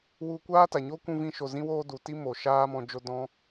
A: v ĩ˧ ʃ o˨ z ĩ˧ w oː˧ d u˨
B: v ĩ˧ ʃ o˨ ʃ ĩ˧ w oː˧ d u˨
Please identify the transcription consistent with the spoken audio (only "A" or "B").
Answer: A